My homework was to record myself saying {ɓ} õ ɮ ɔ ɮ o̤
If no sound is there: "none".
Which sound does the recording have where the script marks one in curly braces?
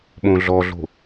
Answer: ɓ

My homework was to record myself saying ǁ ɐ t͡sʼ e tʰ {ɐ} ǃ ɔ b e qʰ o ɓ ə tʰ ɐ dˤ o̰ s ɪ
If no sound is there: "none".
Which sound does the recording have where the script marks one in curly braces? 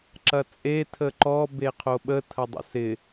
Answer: ə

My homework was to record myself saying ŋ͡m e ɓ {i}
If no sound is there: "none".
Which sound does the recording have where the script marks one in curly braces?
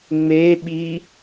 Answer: i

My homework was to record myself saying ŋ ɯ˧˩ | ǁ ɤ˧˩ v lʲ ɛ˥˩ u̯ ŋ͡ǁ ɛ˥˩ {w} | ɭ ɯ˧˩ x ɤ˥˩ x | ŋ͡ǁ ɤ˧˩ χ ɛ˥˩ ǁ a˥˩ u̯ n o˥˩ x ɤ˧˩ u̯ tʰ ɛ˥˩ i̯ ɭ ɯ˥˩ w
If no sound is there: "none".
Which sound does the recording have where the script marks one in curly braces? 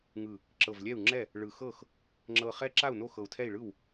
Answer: none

